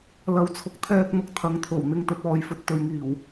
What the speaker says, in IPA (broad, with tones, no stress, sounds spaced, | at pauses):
l ɐ˨ w t͡sʰ ʊ˨ k̚ t̪ʰ ɛː˧ k̚ n̪ ʊ˧ k̚ t̪ʰ ɐ˨ ŋ t̪ʰ o˨˩ w n̪ ɪ˧ ŋ t̪ ɵ˧ t̚ ɔː˧ j f ɵ˧ t̚ t̪ ɵ˨ ɥ ŋ iː˨˩ w